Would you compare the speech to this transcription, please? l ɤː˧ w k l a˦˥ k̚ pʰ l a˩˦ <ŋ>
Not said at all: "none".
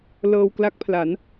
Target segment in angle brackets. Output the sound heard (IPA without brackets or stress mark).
n